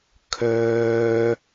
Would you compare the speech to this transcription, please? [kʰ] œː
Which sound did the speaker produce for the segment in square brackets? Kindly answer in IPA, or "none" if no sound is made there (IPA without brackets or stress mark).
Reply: kʰ